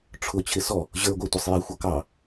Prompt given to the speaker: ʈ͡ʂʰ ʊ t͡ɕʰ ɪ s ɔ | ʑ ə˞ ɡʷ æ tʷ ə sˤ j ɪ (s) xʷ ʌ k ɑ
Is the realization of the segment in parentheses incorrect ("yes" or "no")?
yes